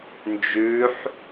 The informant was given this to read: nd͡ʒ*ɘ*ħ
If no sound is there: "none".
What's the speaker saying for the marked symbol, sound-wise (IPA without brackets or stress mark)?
ʉ